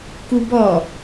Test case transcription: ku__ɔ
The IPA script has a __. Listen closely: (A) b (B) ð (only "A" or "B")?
A